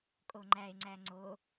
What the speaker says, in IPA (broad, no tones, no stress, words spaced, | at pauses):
kʼoŋ͡ǃæe̯ ŋ͡ǀæŋ͡ǀo